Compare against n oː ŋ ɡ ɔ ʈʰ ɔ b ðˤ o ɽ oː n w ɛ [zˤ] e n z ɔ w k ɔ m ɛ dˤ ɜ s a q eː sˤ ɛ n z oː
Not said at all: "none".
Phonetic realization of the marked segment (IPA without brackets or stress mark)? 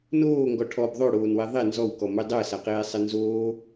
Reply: ðˤ